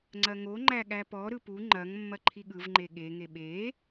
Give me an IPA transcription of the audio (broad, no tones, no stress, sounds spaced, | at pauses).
ŋ͡ǀ ɐ ŋ o ŋ͡ǃ æ ɠ æ p ɔ ɾ ɯ p u ŋ͡ǃ ɐ ŋ mː ɐ ǃʰ i ɠ ɯ v ŋ͡ǃ e ɠ e ŋ e ɓ e